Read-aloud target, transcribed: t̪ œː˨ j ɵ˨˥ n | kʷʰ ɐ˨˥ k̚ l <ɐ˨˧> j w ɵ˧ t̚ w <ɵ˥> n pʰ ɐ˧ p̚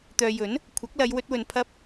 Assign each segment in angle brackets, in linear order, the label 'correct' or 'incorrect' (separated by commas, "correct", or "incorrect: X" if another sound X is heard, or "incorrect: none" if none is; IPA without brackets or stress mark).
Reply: correct, incorrect: ɵ˨